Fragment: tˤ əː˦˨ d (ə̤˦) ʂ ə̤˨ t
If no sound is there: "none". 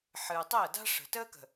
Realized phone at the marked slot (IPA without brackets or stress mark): a̤˦